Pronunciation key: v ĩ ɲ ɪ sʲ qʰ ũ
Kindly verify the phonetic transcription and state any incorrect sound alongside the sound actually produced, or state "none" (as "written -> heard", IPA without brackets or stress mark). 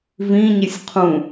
none